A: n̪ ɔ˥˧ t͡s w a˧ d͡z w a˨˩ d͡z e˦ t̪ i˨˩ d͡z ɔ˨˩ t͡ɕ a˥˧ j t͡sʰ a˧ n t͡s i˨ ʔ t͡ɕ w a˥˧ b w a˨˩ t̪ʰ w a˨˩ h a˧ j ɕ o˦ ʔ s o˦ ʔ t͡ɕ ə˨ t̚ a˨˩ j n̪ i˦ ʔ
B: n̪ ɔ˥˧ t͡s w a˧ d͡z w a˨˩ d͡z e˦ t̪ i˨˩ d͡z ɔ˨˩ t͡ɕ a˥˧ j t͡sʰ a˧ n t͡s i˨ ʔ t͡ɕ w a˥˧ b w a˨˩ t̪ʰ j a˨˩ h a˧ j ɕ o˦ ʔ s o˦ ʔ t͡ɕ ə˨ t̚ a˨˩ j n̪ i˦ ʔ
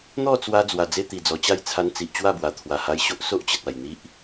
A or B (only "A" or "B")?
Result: A